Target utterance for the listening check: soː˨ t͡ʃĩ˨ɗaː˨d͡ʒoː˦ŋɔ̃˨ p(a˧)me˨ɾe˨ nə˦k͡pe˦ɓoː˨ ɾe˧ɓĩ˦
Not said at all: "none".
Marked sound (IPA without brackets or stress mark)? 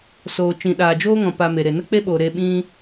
a˧